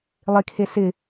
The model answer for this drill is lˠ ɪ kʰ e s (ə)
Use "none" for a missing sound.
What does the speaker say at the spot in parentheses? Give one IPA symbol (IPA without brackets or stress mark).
ɪ